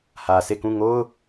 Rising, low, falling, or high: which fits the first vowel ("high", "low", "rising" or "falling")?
low